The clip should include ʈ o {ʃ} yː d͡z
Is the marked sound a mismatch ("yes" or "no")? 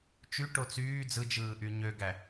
yes